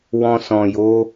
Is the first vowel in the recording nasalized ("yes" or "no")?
yes